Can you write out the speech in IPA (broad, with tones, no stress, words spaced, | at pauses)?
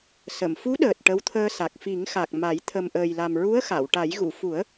sə˨˩˨m fu˧˥ɗəː˨˩t̚ ʈə˧˥wt̪ʰəː˧sa˨˩k̚ fi˨˩˦ŋxa˨˩k̚ ma˨˩˦j t̪ʰə˨˩mʔəː˨˩jla˨˩m ɹu˧˥ə̯xa˨˩˨wʈa˨˩˦j ɣu˨˩˨fu˨˩˦ə̯